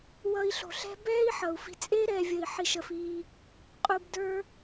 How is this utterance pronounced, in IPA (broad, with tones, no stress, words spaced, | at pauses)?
wʌ˧i̯ɬo̤˨ɬɛ̤˦ bɛː˦i̯ ħʌ˨u̯fi̤˧ t͡sʼeː˦ɾɛː˨vʲə˨i̯ ħi˨ʃə˨f iː˧ | qʼu˧bdə˞˦